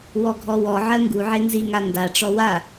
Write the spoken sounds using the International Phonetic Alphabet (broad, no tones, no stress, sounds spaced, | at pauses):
w ɔ ɡʱ ɔ w ɔ ʕ ɜ ŋ ɡ u ʕ e n z i ŋ a n d a ʈ͡ʂ ɔ w a